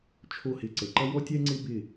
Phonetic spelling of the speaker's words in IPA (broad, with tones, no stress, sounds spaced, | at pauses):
t͡ʃʰ o˦˨ h ɪ˧ ǀ ə˨ ǃ ɐ˦ w ɔ˦ tʲ ɛ˦ ŋ͡ǀ ɪ˦ b ɪ˦˨